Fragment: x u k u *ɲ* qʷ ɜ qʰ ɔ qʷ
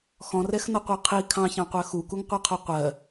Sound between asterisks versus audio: incorrect: ŋ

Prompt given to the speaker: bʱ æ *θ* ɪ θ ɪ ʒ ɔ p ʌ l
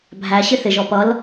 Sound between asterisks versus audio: incorrect: ɕ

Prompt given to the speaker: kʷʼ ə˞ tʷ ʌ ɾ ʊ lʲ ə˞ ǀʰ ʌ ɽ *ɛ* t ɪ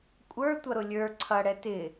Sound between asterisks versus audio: correct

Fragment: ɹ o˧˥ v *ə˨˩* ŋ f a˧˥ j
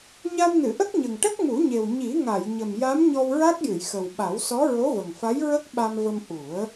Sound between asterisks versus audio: correct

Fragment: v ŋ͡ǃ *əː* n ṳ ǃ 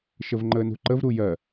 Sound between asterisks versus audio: correct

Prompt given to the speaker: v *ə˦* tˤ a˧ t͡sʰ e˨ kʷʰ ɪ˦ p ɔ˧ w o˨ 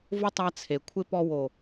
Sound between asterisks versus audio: incorrect: ʊ˦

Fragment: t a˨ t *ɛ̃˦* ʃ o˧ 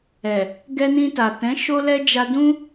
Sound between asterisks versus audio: incorrect: ɛ̃˨˦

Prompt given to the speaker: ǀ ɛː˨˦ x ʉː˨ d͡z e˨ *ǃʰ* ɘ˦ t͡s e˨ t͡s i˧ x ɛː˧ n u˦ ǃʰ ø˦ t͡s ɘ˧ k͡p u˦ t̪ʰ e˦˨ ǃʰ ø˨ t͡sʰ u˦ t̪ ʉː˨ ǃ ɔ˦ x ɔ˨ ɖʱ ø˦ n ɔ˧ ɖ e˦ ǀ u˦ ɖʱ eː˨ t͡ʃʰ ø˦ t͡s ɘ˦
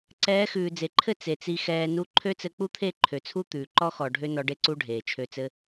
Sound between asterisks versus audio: correct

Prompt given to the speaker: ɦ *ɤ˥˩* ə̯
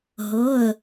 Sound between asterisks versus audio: incorrect: ɤ˩˧˩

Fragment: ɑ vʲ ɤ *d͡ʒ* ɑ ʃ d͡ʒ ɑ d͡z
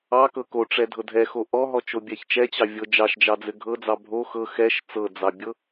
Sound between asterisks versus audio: correct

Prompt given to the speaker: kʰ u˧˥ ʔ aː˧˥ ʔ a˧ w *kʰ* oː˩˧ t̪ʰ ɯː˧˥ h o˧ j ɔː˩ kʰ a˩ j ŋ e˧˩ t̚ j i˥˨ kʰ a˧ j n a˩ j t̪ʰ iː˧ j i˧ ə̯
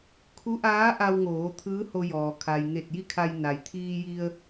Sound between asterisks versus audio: incorrect: ŋ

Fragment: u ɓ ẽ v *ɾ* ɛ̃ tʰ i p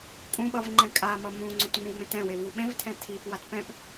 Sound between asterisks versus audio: incorrect: tʰ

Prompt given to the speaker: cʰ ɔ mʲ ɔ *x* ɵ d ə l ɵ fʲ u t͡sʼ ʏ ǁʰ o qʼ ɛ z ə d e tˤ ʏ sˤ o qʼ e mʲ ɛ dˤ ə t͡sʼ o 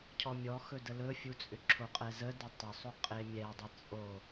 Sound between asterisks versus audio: correct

